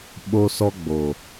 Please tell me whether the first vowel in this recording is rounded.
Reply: yes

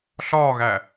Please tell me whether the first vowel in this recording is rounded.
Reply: yes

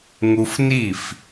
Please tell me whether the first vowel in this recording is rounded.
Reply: yes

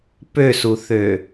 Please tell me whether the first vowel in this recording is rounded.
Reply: yes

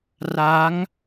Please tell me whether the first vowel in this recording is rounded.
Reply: no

